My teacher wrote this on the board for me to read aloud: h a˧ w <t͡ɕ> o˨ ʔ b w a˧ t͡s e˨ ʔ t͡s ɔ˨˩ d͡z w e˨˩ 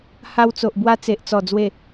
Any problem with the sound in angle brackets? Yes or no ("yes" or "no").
yes